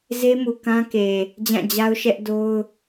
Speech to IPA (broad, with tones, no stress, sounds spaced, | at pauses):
z e˦ m u˨ k ã˦ k e˨ | d͡ʑ ã˦˨ d͡ʑ a˦ ʊ̯ ʃ ɛ˦ ʔ d o˦ ʊ̯